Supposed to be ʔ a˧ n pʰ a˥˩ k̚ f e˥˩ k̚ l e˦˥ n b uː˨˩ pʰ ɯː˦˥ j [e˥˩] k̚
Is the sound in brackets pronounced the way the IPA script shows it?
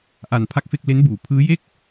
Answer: yes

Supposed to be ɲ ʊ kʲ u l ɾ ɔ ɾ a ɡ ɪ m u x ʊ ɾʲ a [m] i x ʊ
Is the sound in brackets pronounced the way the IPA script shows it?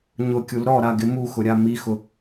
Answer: yes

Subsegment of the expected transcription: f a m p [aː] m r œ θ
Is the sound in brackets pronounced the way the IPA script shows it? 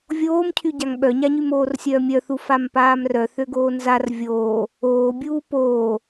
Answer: yes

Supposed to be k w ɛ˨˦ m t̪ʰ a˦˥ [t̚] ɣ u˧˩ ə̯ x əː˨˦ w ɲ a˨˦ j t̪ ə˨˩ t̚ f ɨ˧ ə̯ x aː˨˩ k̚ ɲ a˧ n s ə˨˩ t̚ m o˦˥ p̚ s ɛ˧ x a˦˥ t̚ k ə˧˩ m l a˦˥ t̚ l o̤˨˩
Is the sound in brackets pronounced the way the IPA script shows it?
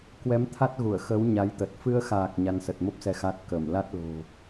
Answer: yes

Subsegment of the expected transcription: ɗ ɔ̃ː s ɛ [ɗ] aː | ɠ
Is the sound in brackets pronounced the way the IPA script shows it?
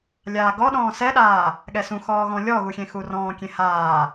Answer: yes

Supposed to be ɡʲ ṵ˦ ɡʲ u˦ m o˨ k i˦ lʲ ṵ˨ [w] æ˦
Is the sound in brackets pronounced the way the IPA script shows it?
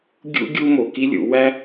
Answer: yes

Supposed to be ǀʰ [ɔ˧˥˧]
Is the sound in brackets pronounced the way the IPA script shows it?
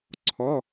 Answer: yes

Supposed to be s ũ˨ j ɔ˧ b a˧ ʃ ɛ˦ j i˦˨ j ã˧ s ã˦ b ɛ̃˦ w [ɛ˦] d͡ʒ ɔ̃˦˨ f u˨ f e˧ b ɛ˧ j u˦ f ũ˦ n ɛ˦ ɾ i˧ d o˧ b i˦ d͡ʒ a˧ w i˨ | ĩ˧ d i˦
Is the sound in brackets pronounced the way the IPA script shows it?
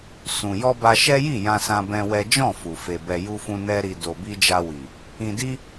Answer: yes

